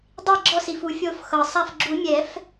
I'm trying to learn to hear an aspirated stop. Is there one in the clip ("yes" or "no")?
no